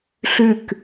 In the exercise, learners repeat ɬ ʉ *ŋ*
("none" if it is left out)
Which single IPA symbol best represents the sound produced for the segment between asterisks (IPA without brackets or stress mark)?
k